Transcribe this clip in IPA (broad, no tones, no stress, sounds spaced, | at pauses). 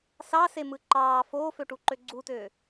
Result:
s ɑ s e m ɯ ǃ ɑː f oː f ø ʈ u ǃ ø ɡ͡ǀ u t øː